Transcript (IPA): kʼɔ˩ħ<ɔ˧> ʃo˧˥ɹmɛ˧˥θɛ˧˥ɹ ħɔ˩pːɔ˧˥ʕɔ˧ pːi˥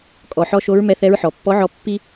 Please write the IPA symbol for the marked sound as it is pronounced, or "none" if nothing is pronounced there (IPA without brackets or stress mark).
ɔ˧